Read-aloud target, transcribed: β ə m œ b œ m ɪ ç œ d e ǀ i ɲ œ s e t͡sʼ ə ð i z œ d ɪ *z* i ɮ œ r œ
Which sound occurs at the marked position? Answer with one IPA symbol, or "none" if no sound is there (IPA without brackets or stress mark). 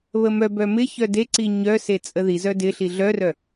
ɬ